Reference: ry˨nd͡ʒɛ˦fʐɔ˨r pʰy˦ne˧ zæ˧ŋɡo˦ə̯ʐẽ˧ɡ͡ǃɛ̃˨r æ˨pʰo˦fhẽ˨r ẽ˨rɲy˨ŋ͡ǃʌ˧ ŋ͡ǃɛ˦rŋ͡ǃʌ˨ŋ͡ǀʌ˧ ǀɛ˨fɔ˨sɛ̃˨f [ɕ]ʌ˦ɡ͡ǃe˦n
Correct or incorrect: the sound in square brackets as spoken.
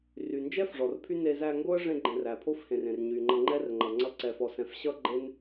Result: correct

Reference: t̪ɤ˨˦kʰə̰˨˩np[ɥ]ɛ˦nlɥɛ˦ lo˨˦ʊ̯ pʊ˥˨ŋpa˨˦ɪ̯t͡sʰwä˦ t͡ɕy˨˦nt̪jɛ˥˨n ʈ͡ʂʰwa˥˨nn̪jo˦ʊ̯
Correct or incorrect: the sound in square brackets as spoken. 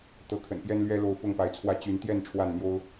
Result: incorrect: j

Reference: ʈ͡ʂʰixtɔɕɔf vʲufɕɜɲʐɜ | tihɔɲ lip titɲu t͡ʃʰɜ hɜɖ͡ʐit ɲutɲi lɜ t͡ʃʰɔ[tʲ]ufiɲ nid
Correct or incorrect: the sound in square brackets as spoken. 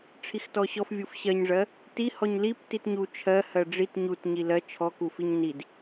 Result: incorrect: k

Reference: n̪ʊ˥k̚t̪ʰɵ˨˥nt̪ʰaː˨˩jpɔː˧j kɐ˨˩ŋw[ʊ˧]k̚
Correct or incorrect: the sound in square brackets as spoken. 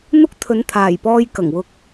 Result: incorrect: ʊ˨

